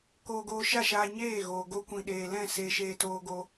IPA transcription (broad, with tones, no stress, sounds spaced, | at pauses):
k oː˧ ɡ oː˧ ʃ a˦˨ ʃ aː˧ ɲ eː˦˨ ɣ oː˨ ɡ o˧ kʷ ĩ˨ ɗ eː˨ l ɛ̃˦˨ s eː˧ ʃ eː˧ t oː˧ ɡ o˧